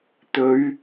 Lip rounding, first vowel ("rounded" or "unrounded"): rounded